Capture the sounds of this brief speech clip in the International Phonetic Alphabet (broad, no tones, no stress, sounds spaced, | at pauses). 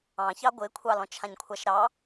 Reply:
ɑ̃ ç ɑ ɡʷ ɪː kʷʰ ɑ l ɔ̃ t͡ʃʰ ã ɲ kʷʰ a ʃ ɾ ɑ